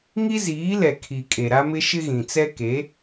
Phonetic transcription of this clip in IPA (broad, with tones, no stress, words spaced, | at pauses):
ŋi˦ziː˨˦lɛ˨ kʰi˨ kʼe˨ɾa˦mɪ˦ ʃɪ˦ɣĩ˨t͡sɛ˦ ke˨˦